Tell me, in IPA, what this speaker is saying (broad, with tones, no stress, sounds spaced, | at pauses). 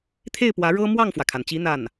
t̪ʰ e˥˩ ɪ̯ p w ä˧˥ ɻ ɤ˥ m w ɑ˥˩ ŋ f w ä˩ kʰ a˩ n t͡ɕ i˧˥ n̪ a˥˩ n